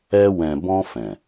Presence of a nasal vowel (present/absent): present